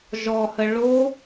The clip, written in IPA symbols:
ʒɔhə ɭo

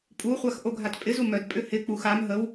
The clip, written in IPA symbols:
pʼuχʷax ʔoɡʱatpʼɪzu mœdpʼʏ hɪk͡pux am ɦəw

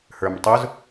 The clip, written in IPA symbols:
hə˞mtˤʊz

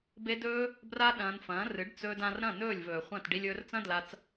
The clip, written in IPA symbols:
be˧ dɵː˦ | bra˦ɗɐ̃ː˧nfɐ̃ː˨˦ rɨ˨˦ɖt͡sɵː˧dã˧r ɾɐ̃˦˨nɵː˦˨lʲvɵː˨ χʷɐ̃˦˨t ɖi˧lʲɵː˧rt͡sɐ̃˦dla˧t͡s

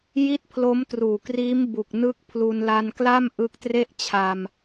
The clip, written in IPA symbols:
ji˥˩t̚pʰlo˦˥mtruː˨˩kriː˦˥m bu˨˩k̚nɯ˦˥k̚ pʰlu˧nla˧nkla˥˩m ʔɯ˦˥k̚tre˥˩ʔt͡ɕʰa˧m

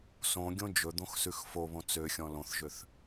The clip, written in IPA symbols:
sõɡʲõ d͡ʒɵd̪õx sʉxfoβõ t͡søxʲɔ̃ lõθʒøθ

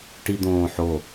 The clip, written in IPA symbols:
ʈid̪õːħo

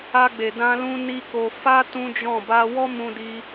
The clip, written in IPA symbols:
a˧ɡ͡be˨dã˧lũ˧ ni˦ko˧ fa˦ tũ˦d͡ʒɔ̃˦˨ ba˧wɔ˦mũ˧di˧

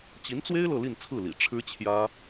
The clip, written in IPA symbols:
t͡ɕi˧˥nt͡swe˥ɪ̯ lɤ˥˧li˥˧nt͡sʰɹ̩˥˩lḭ˨˩ ʈ͡ʂʰɻ̩˥ t͡ɕʰjä˥

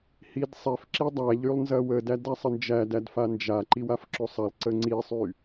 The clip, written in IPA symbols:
hidsˤɛfǁi dˤæʎylˠ nzɐwədæd æsˤənd͡ʒædæd fand͡ʒaǃiw afǁosˤɐlˠǀə ŋ͡ǀisˤy

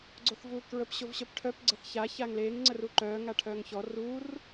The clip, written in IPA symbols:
ɡ͡ǀoθvuːkɹəp ɕovɕœpʈʰœp ɡ͡ǀəθça çaŋleːŋ ŋ͡ǀəruǃœː ŋaʈʰœːŋçɔ rur

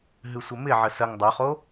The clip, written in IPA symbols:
ɦɨsʷəmɪʕə sɐŋ dˤoχo

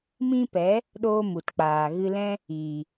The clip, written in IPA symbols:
mĩ˦pɛ˨˦ | ɗoː˦mu˨tk͡paː˨ ɣɨ˧lɛ̃˦ | i˨

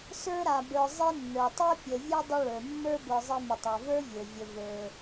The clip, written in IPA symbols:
sə˞˥ɾa˨bə˞˨ zˤe˦nːə˞˩tˤe˥ pʲə˩ vʲe˥ dˤə˦ɭə˞˩mːə˞˥ bə˞˨zˤe˦mə˩tˤa˩ və˞˥vʲə˞˩ vʲə˨və˞˨

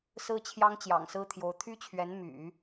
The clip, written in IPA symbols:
sɹ̩˥t͡ɕʰjɑ˥ŋ t͡ɕjɑ̰˨˩ŋsɹ̩˥t̪ʰjo˧˥ʊ̯ t̪ʰy˥t͡ɕʰɥɛ˧˥n my̰˨˩˦

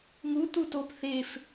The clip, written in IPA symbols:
ŋu t̪utop θef

